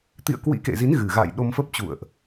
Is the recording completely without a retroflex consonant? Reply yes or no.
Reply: yes